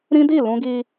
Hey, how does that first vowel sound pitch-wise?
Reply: high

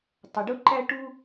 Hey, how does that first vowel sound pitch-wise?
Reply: low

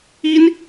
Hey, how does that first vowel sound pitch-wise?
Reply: high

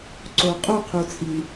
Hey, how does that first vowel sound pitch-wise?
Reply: low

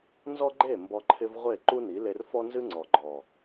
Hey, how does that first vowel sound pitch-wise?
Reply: high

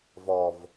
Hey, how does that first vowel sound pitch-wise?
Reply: low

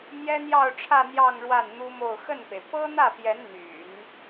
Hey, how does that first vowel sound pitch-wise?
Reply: high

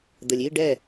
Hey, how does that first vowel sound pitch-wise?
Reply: low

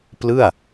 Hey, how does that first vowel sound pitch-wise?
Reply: falling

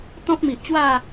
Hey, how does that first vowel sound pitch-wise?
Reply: high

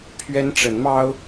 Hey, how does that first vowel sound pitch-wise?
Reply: high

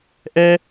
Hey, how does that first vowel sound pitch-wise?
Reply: high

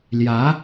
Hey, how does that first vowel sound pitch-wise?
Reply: rising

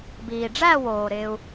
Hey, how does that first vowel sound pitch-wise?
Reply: low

